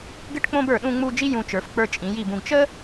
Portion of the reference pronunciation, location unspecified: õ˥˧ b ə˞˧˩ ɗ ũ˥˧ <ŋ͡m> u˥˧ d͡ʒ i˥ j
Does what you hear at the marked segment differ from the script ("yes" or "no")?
no